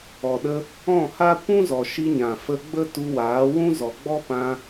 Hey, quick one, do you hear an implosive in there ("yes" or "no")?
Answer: yes